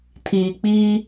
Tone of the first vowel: low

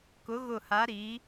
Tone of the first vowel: rising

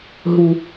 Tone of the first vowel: low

